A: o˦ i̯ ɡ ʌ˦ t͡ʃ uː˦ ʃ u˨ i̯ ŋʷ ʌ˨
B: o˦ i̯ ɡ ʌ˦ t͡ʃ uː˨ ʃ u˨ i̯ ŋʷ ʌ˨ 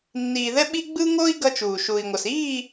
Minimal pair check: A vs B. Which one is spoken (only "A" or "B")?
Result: B